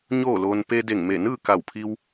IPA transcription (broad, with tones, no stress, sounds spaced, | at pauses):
ɲ oː˥˨ l oː˧ n p e˧ d e˧˩ ŋ m e˧˩ n ɯː˥˨ k a˧˩ w pʰ i˧ w